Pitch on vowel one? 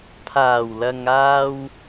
low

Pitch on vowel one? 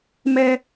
high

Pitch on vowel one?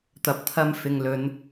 low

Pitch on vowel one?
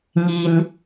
low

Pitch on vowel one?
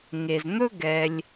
low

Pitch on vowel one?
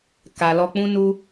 low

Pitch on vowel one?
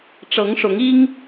rising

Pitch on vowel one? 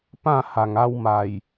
falling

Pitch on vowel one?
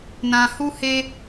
low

